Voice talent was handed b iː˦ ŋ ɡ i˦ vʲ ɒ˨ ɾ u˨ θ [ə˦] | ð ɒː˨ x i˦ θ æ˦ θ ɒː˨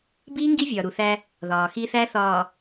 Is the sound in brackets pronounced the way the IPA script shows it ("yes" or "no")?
no